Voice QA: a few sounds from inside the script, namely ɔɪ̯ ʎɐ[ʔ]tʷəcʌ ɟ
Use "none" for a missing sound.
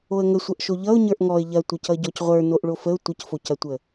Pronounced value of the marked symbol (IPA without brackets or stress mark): none